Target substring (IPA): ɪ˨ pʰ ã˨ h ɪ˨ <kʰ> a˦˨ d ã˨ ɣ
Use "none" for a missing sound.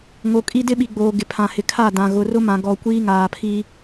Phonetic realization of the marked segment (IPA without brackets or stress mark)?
kʰ